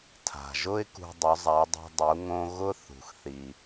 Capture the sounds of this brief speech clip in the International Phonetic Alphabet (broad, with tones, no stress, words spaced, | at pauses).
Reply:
tʰa̤˩ʒʊ˥ɪ̯ kṳ˧ dˤʊ˩˧zˤa˩˧ dˤɛ̤˧ dˤu˩˧ ŋõ˧ ɣʊ˥ θṳ˩xθi˩